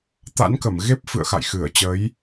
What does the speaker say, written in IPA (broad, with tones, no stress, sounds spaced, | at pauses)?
t̪ a̰˧˥ n k ə˧˩ m ɣ e˦˥ p̚ f ɨ̰˧˨ ə̯ x a̰˧˨ j x ɨ˧˩ ə̯ t͡ɕ ə˨˦ j